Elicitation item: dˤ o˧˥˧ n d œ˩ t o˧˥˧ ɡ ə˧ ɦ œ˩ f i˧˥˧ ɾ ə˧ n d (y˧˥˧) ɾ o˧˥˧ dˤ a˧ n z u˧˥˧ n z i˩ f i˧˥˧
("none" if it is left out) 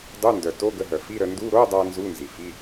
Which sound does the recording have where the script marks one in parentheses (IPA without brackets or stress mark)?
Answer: u˧˥˧